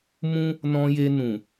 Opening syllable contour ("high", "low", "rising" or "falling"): high